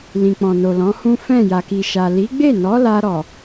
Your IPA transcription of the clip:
lĩ˨k͡pɔ̃˨no˨ lɔ̃˨˦hũ˦ fɛ̃˦˨ja˨ki˨ʃa˨ li˨˦ɡ͡be˦˨nɔ˨˦ la˧ɾɔ˨

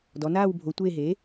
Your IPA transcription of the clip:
dɔ˩˧naː˦˨wbʱo˩˧ tʷeː˦˨ɦe˩˥

